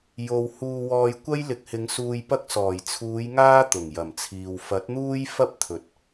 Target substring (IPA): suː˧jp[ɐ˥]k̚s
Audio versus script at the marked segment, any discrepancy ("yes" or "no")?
no